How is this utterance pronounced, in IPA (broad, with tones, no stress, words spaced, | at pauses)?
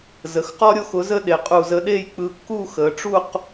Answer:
zə˩˧xqɔ˥ɾʲo˥x ʊ˩˧zə˧ ɗe˩˧qʼu˧˩zə˧ ɗe˥˧jk͡pɯ˧kːu˥˧ xəː˩˧ʈ͡ʂu˥˧q